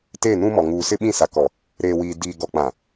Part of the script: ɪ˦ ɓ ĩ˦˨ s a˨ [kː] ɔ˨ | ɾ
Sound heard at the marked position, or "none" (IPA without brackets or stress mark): k